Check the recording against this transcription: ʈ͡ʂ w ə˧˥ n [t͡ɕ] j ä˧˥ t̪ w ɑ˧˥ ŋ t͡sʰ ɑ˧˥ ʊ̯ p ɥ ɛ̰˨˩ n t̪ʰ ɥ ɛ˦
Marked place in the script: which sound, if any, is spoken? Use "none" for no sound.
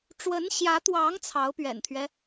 ɕ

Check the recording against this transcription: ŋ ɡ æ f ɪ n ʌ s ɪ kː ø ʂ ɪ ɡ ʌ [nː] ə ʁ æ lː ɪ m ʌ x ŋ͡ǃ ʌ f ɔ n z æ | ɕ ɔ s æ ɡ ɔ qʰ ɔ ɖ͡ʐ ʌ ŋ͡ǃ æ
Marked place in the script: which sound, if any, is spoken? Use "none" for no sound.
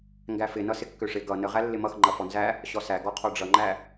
n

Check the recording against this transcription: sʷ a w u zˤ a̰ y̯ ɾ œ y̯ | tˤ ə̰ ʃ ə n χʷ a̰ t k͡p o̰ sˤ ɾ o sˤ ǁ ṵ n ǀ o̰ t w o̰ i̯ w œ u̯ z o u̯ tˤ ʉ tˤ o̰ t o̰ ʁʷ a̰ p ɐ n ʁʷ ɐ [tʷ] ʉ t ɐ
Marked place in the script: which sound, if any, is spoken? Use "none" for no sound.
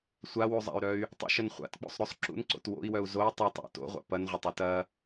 tˤ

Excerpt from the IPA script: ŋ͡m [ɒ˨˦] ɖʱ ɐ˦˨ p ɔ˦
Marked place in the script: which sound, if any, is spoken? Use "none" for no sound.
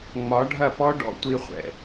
ɒ˨˦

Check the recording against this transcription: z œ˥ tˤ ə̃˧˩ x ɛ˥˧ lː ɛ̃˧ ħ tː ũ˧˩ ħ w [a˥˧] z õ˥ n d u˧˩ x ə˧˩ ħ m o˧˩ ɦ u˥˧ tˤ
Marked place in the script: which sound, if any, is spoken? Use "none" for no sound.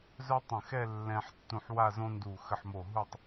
a˥˧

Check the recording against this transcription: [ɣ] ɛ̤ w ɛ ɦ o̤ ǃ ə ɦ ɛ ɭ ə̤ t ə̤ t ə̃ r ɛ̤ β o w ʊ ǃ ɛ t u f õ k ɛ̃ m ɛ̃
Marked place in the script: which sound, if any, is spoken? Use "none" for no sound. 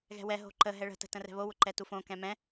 ɣ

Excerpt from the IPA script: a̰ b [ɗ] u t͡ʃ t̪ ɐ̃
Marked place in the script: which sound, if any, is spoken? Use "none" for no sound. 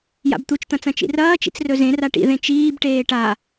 t̪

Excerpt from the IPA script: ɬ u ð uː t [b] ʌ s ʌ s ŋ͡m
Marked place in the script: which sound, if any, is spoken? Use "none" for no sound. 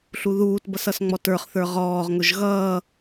b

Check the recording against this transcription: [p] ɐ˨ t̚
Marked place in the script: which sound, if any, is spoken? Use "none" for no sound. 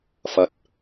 f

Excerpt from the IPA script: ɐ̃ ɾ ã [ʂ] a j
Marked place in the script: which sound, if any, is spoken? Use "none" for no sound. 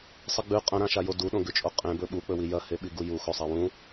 ʃ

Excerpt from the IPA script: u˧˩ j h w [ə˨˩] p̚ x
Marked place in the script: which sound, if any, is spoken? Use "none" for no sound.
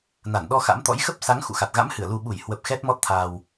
ə˨˩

